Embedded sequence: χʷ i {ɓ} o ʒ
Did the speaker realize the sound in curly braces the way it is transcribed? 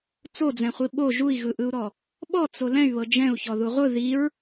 yes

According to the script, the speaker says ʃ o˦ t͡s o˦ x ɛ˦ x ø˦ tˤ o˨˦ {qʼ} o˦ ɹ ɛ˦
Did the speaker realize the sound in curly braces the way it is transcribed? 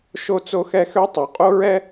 yes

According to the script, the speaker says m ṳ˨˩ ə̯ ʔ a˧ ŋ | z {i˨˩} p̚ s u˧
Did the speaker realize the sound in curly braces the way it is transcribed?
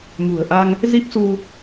no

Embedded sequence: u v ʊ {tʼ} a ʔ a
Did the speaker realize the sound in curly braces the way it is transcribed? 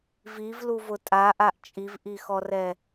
yes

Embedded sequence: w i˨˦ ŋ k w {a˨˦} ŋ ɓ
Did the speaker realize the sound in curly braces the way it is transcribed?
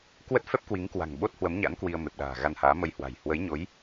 no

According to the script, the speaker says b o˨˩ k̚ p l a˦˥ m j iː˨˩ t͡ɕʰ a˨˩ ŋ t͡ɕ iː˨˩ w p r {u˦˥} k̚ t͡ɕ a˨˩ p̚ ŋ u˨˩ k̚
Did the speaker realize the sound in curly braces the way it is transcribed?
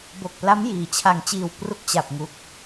yes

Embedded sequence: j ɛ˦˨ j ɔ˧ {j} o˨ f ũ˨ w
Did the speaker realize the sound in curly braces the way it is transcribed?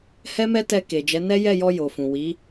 yes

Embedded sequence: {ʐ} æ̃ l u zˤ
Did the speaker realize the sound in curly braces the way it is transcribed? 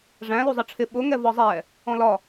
yes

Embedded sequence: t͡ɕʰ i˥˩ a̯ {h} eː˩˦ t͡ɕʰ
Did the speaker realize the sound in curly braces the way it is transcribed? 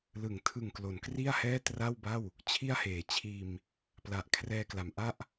yes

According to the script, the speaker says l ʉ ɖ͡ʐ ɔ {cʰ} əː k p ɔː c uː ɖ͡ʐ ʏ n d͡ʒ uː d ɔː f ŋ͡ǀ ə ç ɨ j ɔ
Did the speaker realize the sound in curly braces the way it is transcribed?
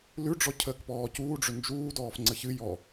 yes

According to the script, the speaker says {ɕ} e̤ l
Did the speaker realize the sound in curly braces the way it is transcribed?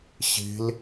yes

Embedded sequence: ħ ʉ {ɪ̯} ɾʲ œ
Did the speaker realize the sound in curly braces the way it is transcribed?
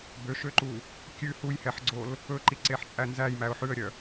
no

